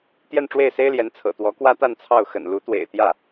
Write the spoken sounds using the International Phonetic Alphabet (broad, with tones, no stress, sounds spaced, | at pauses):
t̪ j ɛ˥˧ n ʈ͡ʂ w e˥˩ ɪ̯ s e˥ ɪ̯ l j ɛ˧˥ n t͡sʰ ɤ̰˨˩ t̪ w ɔ˧˥ k w ä˥ t̪ a˥˧ n t͡sʰ ɑ˥˩ ʊ̯ x ə̰˨˩ n l u˧˥ t̪ w ḛ˨˩ ɪ̯ t̪ j ä˥˩